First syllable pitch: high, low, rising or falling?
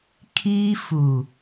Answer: high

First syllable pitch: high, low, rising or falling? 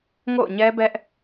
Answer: falling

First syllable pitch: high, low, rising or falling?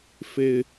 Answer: low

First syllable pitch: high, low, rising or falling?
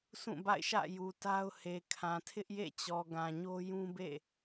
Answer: falling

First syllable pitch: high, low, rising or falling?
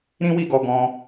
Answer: high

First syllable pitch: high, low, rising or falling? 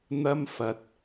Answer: high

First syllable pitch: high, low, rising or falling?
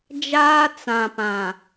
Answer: high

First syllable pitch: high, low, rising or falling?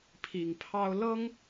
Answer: low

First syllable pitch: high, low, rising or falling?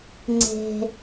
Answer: high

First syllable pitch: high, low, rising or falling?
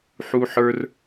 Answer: high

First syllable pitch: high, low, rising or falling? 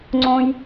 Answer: high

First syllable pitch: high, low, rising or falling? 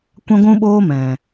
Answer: high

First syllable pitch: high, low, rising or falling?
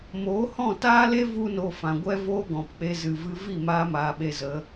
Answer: rising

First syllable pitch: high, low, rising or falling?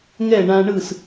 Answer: falling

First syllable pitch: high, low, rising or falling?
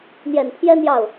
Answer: low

